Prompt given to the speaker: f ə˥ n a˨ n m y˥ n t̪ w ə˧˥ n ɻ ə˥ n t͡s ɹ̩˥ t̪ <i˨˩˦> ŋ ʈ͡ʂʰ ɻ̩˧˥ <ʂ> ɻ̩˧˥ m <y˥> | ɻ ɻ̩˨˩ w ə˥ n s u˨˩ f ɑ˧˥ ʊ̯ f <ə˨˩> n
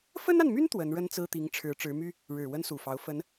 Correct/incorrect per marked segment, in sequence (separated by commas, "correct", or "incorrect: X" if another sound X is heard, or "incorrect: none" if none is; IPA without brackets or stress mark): incorrect: i˧˥, incorrect: ʈ͡ʂ, correct, incorrect: ə˧˥